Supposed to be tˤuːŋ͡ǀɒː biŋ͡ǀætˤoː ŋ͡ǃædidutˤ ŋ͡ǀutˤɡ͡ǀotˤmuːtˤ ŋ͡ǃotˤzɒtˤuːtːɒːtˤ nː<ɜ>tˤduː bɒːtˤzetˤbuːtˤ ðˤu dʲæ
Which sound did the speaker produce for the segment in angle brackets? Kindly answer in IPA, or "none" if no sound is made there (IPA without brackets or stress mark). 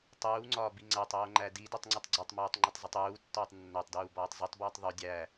æ